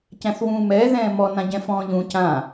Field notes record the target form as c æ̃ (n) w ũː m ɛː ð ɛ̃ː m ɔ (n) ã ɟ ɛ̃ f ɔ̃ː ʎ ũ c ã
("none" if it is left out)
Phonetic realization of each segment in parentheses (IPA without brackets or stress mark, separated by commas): θ, n